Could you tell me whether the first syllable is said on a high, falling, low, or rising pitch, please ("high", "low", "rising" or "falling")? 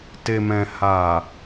low